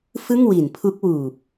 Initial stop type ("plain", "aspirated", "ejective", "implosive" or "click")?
aspirated